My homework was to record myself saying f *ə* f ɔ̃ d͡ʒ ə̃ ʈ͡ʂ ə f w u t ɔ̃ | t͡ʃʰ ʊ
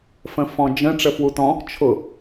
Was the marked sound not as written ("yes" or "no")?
yes